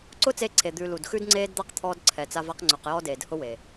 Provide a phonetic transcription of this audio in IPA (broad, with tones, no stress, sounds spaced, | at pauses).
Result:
ǀ ʊ˦ t͡s e˧ ǀʰ e˨ d̪ ʉ˧ l u˨ d x ʉ˦ d ŋ͡ǀ eː˦ d d̪ a˦ q t̪ʰ ɔː˧ d ǀʰ ɛ˨ t͡s a˦ v a˦ q ŋ͡ǀ ʉ˨ q j ɔ˦ d eː˨ d h ʊ˦ w e˨